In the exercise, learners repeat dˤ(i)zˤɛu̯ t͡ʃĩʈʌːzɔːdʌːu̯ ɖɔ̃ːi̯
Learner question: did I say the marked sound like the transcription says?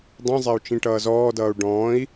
no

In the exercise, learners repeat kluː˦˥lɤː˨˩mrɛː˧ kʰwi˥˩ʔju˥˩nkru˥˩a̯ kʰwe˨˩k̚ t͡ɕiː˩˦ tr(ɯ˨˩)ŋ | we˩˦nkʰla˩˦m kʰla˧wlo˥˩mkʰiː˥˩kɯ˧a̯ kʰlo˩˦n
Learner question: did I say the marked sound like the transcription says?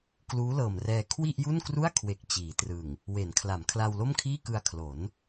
yes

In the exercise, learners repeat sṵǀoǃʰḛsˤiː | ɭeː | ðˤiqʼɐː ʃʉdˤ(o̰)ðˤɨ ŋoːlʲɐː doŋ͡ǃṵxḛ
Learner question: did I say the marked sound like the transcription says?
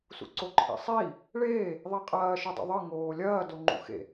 yes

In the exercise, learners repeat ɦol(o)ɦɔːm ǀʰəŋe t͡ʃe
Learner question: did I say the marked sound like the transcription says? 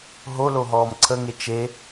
yes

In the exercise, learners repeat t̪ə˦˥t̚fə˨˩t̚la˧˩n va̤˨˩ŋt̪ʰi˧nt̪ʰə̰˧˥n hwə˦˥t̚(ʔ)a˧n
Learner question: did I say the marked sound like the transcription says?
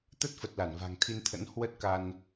no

